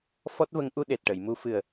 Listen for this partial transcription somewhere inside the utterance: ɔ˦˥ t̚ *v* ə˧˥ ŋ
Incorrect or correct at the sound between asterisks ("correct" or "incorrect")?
correct